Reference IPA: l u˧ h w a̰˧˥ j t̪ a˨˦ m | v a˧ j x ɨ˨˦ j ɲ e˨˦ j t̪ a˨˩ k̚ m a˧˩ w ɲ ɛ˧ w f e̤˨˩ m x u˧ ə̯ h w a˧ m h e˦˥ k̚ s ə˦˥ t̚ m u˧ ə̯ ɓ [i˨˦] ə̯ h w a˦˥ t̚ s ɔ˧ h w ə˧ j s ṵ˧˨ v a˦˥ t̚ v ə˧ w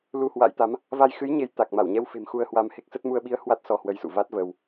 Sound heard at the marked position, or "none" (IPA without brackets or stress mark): i˨˦